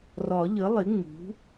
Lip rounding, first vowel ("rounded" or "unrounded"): rounded